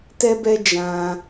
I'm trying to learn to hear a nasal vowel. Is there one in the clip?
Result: yes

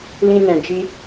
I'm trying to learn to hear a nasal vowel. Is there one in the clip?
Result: yes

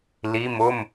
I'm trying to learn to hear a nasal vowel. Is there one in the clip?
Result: no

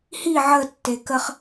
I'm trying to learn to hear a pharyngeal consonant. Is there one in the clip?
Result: yes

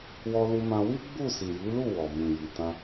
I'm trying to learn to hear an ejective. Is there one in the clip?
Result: no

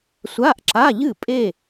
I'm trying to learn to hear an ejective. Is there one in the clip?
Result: yes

